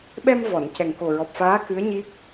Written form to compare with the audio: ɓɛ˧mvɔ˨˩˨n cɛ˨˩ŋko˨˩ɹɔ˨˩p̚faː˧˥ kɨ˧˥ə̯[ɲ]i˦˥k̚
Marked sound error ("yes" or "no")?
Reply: no